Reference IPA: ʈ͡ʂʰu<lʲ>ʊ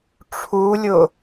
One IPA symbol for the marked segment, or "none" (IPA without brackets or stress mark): lʲ